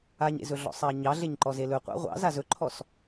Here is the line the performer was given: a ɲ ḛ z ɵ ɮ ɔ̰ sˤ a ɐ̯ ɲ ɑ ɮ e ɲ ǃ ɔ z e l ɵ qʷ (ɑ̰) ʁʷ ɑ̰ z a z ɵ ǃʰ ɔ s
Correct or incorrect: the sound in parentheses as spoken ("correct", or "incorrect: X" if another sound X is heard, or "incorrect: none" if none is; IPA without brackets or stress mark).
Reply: correct